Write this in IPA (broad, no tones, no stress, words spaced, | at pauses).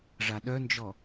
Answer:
ʐaɗœnd͡ʒɔ